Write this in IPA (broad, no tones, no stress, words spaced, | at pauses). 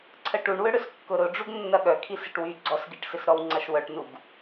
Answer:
ǀʰəʈuɳwʏ ɽʏskːʊɾʊ ɖ͡ʐuɡnːɐɠœkʰi sɪʈwy ɡ͡ǀɔsɡiʈsɪsɾɔw ŋ͡ǀɐʃwœʈnuɡ